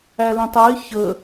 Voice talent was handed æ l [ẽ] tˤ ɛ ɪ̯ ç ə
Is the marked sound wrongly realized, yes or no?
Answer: no